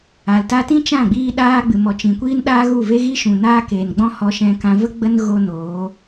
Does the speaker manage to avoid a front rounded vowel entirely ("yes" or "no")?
yes